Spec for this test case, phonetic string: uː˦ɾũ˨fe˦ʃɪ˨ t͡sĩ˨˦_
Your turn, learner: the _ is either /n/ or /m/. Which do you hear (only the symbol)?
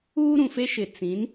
n